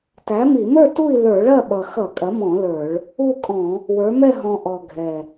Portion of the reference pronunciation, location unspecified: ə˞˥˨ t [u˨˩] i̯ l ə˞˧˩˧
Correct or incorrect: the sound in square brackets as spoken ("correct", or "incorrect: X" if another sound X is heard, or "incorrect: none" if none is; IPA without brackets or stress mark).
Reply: incorrect: u˥˨